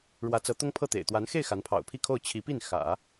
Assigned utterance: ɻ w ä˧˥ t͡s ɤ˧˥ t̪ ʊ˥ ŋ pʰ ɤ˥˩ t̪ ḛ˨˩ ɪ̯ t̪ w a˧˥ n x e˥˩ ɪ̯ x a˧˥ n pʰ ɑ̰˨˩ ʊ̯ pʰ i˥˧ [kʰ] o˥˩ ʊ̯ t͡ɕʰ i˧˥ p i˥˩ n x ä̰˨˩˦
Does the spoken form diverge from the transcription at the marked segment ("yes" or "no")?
no